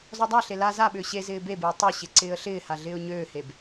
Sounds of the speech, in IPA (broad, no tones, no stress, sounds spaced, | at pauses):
z ɔ dˤ a ɬ e l a z a ɓ ʏː ɕ e z ɪː b e b ɪː tˤ ʏ ɕ ɪ ǀ ɪː ə̯ ɬ ɪː h a ɮ ɪː ʊ̯ ɲ øː h e b